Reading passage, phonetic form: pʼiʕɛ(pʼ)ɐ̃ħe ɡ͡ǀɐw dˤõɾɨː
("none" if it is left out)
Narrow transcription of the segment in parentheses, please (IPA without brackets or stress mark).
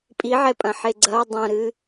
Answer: pʼ